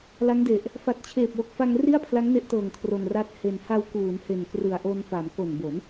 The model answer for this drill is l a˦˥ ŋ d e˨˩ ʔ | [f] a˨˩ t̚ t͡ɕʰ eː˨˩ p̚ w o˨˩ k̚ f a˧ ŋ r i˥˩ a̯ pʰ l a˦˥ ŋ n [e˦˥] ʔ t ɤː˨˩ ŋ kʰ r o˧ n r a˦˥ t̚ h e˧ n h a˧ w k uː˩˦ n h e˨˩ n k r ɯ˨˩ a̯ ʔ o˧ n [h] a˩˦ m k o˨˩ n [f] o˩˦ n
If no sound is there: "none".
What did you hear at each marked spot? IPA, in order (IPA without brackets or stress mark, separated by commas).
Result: f, e˦˥, f, b